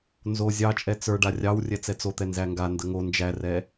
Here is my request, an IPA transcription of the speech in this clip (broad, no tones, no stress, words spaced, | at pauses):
nzo zʲɑt͡ʃʼɛ t͡sə˞ ɖarʲɑwrʲɛ t͡sɛt͡sot̪ɛ nzæŋɡandə ŋo nd͡ʒærɛ